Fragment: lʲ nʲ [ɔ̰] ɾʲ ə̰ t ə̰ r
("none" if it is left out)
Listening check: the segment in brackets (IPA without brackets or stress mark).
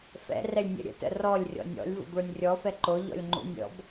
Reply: ə̰